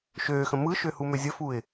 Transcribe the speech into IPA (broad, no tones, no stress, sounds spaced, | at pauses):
ʃ øː x ə̃ m ɯ ʃ ø h u m ø zʲ ə f u ɪ̯